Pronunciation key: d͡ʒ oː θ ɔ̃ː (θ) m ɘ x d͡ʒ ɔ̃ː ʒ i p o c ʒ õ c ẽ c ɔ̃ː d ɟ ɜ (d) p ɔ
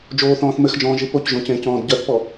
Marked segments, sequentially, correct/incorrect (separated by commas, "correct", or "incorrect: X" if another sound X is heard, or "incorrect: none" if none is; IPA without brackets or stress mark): correct, incorrect: θ